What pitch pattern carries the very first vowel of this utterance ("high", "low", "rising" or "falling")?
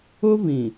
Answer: high